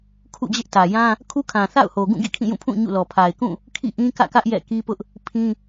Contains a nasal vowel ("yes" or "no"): yes